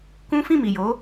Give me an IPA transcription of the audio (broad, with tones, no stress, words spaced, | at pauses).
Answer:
kũ˦ fĩ˦˨mi˨jo˨˦